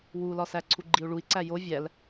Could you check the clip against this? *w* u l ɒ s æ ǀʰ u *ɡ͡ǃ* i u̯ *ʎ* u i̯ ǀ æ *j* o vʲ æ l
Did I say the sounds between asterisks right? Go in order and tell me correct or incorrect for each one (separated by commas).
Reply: correct, correct, incorrect, correct